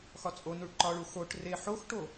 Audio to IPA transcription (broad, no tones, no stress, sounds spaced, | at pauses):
x ɒ t͡sʼ o n u ɭ ǃ ɒ ɭ u x o ʈ r e ħ o x ʈ o